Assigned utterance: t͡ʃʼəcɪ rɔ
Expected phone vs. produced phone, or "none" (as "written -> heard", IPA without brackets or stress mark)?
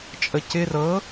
ɔ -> ɤ